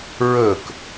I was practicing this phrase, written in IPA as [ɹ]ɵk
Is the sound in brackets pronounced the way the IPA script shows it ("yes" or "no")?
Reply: yes